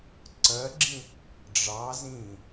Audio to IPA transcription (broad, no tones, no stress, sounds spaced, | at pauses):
ǀ ɜ ɡ͡ǁ ĩ | ɖ͡ʐ ɑ z ĩ